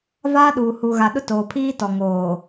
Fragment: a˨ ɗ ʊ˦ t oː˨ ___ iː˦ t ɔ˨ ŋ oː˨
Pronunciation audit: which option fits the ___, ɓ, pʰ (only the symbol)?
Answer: pʰ